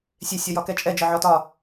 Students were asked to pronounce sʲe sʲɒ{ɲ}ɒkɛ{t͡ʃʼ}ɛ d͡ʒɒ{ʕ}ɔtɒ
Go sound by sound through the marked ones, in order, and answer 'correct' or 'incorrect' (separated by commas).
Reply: incorrect, correct, correct